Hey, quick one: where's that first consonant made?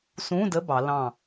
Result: tongue tip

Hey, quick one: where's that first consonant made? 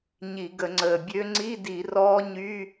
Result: palate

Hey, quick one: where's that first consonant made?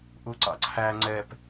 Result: throat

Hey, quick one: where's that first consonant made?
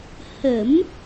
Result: throat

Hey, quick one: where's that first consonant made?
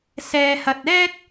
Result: tongue tip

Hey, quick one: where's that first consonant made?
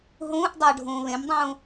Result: throat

